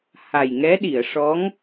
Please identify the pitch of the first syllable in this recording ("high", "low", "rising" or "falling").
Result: low